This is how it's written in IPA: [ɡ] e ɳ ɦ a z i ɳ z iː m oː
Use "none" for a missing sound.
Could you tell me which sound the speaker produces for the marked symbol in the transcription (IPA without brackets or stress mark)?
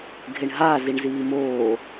ɡʱ